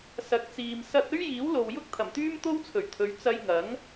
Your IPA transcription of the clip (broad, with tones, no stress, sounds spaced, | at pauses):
s ɐ˨ k̚ t͡s iː˨ m s ɐ˧ t̚ ɵ˥ ɥ j iː˨˥ w l o˨ w j ʊ˥ k̚ t̪ʰ ɐ˨˩ m t̪ yː˥ m t̪ o˥ w t͡sʰ ɵ˨˩ ɥ t̪ʰ ɵ˨˧ ɥ t͡s ɐ˧ j ŋ ɐ˨˥ ŋ